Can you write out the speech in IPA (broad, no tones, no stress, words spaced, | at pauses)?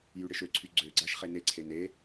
jyɽɪʃøǀʰy ɡ͡ǀøɡ͡ǀaʃ χeneǀʰen e